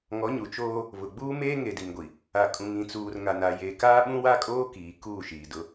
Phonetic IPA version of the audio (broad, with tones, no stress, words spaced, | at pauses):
ŋɔ˨˦ɲu˨t͡ʃoː˦ | βʊ˨ɡ͡buː˦ meː˦ŋe˨di˨ŋɡʷi˨ | a˨kʼũ˨ŋĩ˨ t͡suː˨rŋa˨na˨ je˨ kaː˦ɓũ˦wa˦kʼoː˦ kiː˨kuː˦˨ʃiː˨dʊ˦